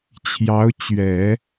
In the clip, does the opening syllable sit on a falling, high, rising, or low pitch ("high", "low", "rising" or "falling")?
rising